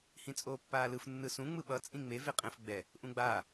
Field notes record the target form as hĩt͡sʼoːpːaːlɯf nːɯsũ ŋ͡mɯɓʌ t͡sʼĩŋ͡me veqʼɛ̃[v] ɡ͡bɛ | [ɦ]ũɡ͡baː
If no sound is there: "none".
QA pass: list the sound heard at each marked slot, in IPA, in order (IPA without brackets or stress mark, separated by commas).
f, ʔ